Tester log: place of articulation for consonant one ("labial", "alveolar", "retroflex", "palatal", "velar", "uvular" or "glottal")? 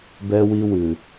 labial